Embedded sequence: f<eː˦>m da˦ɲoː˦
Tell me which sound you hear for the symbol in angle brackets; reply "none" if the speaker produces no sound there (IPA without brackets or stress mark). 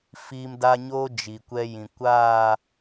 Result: iː˦